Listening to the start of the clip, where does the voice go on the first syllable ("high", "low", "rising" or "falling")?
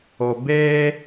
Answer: low